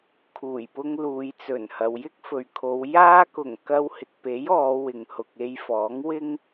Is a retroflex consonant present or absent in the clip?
absent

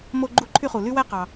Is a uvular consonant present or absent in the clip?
present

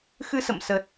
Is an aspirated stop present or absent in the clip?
absent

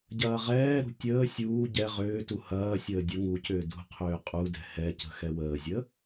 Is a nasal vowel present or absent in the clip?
absent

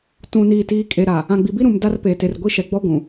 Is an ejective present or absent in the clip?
present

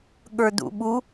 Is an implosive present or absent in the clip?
present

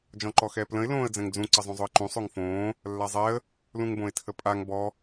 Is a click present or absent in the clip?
present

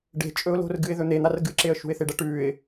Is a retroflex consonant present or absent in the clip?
present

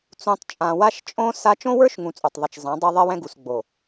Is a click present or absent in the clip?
absent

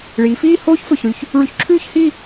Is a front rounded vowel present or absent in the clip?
absent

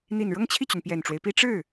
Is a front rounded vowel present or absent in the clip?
present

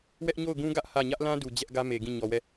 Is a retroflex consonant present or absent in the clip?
absent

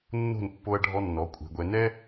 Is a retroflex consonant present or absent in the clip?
present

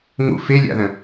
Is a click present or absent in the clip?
absent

